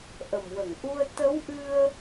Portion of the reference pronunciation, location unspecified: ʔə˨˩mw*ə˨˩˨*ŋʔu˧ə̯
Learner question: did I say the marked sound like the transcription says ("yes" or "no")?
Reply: yes